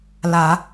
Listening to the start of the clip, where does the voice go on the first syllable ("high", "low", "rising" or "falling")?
low